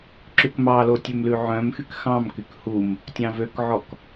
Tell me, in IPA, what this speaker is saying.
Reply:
ǁ ʉ k m ɑ l o tʲ ø m l ʉ ʕ œ̃ m x y k x ɑ̃ m k y k h u m | tʲ ɑ̃ v ø k ʕ ɔ k

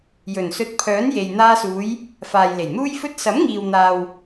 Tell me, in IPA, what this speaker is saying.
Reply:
j ɵ˨˩ n s ɵ˧ t̚ pʰ œː˨˥ n j e˨ j n̪ aː˧ s uː˨˧ j | f aː˨ j l e˨˩ j n̪ uː˥ j f ɵ˥ t̚ s ɐ˨˥ m ŋ iː˨ w n̪ aː˨ w

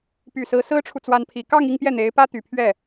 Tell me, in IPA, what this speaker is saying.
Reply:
p y˨˩ s ɹ̩˧˥ s ɹ̩˥ ʈ͡ʂʰ u˨ t͡s w a˧˥ n pʰ i˨˩ k ɑ˥˧ ŋ i˥˧ ŋ p j ɛ˥˩ n̪ e˧˥ ɪ̯ p ä˥ t̪ y˨˩ pʰ ɥ ɛ˥˩

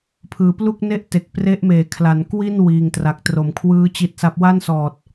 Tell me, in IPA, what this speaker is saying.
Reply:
pʰ ɯː˨˩ p l u˥˩ k̚ n e˥˩ ʔ t e˨˩ k̚ p r e˦˥ ʔ m eː˩˦ kʰ l a˩˦ n k w i˥˩ n w iː˨˩ ŋ t r a˨˩ k̚ t r o˨˩ m kʰ w ɯː˦˥ t͡ɕ i˦˥ t̚ s a˦˥ p̚ w a˥˩ n s ɔː˨˩ t̚

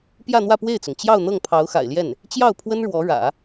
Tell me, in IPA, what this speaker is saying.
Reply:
p j ä˥˧ n̪ w ä˥˧ p w e˥˩ ɪ̯ t͡s ʊ˩ ŋ t͡ɕ j ɑ˥˧ ʊ̯ n̪ ɤ˥˩ ŋ pʰ ɑ˧˥ ʊ̯ x a̰˨˩ ɪ̯ l j ɛ˥˩ n | t͡ɕ j ɑ˥˩ ʊ̯ pʰ w ə˥ n ɻ w ɔ˧˥ ɻ ä̰˨˩˦

